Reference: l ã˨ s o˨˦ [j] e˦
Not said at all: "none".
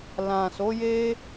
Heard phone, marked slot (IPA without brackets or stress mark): j